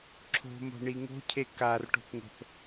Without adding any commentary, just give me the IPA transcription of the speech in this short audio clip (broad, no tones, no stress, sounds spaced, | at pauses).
ǁʰ o̤ m o̤ ɳ i ŋ o̤ cʰ e k a r ʈ o̤ p ŋ ə̤ p